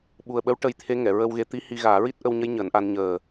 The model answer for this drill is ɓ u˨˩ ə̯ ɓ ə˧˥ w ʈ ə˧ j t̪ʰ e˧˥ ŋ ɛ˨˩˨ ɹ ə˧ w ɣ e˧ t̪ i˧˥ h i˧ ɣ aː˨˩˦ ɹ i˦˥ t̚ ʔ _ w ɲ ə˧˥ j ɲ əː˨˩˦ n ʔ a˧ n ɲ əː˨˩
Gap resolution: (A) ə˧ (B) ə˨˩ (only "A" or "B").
A